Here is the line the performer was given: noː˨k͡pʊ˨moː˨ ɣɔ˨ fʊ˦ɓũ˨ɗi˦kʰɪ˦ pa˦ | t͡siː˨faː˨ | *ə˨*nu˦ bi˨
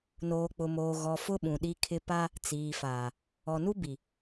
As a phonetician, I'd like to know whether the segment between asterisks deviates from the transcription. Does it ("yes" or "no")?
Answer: yes